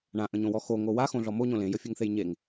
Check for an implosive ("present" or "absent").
absent